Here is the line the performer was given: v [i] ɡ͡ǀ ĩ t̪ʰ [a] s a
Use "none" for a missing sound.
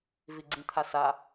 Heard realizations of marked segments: i, a

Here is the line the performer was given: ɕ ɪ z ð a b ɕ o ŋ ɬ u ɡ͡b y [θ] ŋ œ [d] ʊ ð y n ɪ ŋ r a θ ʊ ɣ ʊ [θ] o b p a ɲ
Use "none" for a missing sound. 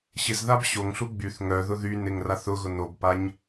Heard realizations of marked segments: θ, ð, n

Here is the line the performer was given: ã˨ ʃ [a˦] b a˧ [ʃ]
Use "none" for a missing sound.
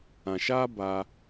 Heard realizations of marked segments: aː˦, none

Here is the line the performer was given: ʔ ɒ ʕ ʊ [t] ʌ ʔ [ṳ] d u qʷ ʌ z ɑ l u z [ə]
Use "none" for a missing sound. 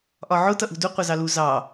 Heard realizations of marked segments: t, ṳ, ɑ

